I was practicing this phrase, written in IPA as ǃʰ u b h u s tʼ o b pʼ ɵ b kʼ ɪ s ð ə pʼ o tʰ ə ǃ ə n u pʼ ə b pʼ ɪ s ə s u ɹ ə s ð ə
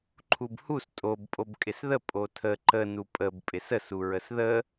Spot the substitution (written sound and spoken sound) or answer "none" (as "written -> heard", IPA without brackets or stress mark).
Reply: ɵ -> o